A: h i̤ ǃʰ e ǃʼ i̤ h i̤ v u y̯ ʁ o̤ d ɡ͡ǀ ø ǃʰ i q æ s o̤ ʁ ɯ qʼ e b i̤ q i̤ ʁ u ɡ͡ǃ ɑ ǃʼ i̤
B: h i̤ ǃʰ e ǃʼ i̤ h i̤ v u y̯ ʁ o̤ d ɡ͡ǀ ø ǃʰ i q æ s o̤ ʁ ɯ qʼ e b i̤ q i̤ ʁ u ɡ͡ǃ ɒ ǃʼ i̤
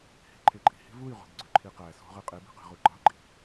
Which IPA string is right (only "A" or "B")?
A